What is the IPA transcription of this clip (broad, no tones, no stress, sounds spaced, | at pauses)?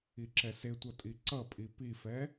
i ǁ ɛ s e tʷ ʌ tʼ i ǀ ʌ pʼ i p i f ɛ